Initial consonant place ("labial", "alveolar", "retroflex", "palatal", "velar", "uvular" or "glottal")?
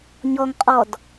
palatal